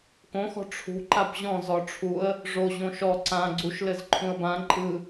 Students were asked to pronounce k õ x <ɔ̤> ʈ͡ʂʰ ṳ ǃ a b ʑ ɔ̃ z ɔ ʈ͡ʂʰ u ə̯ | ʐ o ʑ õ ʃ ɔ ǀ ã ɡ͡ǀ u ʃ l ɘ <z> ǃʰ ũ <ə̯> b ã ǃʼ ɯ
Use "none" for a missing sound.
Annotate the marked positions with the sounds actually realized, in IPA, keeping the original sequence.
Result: ɔ̤, z, ə̯

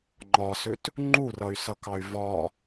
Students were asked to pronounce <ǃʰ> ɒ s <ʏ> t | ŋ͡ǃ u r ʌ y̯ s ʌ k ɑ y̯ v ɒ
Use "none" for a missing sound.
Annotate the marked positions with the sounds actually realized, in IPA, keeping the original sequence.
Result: ŋ͡ǃ, ʏ

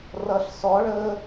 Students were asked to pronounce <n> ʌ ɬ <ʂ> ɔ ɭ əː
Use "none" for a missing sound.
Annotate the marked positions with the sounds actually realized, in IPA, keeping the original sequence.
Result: r, s

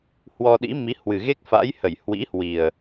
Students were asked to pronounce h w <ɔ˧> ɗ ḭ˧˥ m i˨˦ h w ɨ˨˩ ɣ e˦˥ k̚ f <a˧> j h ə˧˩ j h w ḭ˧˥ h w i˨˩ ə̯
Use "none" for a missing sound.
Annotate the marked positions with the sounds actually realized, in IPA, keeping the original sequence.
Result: ɔ˧, a̰˧˥

